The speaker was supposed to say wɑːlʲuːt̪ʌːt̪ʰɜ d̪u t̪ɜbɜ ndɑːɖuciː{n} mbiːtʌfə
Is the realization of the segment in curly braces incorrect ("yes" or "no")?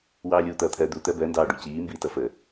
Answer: yes